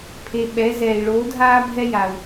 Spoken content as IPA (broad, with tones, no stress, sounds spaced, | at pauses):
pʰ e˧ ɓ ɛ˧˥ z ɛː˧ i̯ ɭ oː˧˥ dʱ aː˥ bʱ ɛ˥ j a˧ u̯